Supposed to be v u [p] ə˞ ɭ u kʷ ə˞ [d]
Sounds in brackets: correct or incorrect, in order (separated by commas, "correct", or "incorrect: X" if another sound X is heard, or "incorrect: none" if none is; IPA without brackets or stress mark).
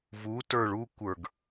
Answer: incorrect: t, incorrect: ɡ